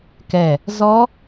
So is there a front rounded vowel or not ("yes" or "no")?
no